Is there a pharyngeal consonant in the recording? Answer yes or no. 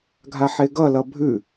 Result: yes